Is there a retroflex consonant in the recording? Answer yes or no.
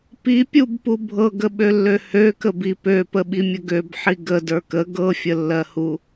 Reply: no